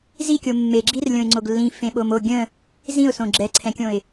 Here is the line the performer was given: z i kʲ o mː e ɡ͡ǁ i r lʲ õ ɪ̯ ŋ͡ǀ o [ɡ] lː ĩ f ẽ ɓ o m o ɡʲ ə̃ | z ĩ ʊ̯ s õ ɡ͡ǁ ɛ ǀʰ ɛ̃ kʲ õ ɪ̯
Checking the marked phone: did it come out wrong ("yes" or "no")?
no